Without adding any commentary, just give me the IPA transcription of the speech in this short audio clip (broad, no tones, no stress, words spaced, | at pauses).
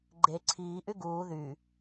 ɡ͡ǃe ǀʰiːʔy ɡuː ðy